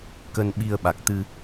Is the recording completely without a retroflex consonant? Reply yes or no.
yes